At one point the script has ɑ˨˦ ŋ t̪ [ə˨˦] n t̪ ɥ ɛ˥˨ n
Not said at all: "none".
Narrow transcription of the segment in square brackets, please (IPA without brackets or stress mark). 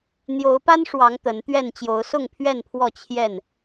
ə˨˦